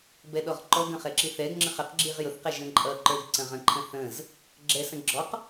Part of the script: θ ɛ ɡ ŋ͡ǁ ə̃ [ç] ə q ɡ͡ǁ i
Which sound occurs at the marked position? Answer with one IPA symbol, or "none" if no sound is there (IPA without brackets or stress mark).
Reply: χ